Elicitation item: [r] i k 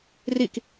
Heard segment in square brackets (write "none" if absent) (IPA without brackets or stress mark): r